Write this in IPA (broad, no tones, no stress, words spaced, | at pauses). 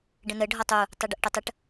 ɖə̃nə ɖʱɒtˤu | tˤɛɖəʔʈətˤəʈ